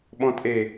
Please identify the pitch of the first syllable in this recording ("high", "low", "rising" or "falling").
low